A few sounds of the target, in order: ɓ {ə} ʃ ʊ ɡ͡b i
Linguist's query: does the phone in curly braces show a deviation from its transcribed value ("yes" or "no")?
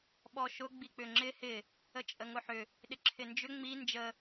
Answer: yes